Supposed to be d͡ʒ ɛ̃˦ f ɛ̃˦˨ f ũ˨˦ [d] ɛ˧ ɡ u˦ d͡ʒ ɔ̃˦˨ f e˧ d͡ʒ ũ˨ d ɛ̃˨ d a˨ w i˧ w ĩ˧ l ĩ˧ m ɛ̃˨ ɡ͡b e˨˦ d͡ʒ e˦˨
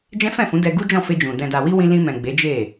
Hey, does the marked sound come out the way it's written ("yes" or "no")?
yes